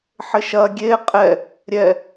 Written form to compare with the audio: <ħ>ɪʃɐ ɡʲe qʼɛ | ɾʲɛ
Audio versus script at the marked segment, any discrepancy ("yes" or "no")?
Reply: no